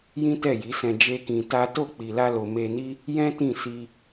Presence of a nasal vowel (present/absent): present